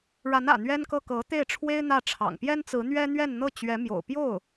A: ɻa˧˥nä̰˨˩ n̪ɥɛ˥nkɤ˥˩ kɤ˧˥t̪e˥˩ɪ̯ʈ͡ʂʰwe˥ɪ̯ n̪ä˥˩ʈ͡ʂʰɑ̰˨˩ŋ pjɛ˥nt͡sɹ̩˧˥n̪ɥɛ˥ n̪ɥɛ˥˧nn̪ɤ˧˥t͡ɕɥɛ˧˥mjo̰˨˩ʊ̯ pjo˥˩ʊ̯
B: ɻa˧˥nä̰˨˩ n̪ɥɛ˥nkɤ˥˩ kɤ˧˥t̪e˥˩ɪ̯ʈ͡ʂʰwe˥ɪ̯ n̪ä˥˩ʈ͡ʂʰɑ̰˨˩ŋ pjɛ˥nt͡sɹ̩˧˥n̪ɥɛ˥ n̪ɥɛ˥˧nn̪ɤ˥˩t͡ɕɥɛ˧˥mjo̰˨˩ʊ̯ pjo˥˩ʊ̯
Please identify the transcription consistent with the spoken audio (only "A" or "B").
B